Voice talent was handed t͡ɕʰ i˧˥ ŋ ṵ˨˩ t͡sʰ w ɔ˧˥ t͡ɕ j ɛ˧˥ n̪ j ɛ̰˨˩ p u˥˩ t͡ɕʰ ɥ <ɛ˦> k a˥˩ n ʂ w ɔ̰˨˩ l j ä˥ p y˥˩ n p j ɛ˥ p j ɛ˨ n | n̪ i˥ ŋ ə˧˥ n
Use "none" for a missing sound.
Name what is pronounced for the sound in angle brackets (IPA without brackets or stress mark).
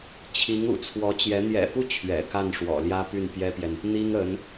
ɛ̰˨˩